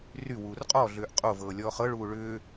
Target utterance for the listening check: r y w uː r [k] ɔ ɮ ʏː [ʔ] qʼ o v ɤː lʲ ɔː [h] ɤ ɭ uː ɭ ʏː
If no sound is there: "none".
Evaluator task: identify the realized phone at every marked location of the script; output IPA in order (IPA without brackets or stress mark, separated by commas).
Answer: qʼ, ʔ, χ